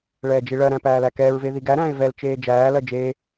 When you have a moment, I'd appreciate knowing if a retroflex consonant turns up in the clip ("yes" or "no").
yes